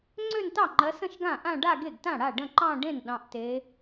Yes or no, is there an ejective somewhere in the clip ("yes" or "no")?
no